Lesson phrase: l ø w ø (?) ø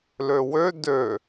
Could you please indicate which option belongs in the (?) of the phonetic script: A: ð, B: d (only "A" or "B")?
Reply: B